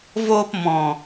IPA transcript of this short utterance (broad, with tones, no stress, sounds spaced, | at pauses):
v oː˧ p m ɔ̃˨